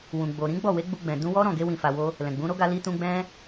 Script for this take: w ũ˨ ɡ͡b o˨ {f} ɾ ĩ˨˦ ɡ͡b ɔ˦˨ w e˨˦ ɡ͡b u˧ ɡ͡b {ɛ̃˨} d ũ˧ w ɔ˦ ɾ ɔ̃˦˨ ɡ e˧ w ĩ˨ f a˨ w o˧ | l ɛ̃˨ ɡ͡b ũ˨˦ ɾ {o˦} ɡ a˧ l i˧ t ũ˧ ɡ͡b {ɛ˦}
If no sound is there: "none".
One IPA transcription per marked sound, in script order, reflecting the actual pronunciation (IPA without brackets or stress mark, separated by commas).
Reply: none, ɛ̃˨, o˦, ɛ̃˦